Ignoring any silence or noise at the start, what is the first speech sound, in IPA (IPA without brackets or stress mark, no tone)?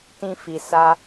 t